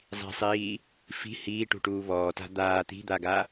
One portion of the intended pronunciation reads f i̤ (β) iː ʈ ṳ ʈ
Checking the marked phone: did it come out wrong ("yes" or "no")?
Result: yes